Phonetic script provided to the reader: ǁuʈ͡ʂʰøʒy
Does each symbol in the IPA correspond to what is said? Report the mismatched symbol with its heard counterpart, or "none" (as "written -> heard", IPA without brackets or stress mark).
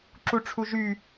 ø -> u